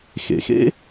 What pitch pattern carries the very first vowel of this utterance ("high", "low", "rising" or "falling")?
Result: low